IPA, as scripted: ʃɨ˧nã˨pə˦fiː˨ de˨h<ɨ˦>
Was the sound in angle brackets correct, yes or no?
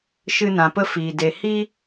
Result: no